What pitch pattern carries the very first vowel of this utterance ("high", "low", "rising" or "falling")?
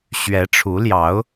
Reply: rising